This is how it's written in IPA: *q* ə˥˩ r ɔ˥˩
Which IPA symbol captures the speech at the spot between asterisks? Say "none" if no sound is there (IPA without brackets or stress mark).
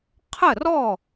qʰ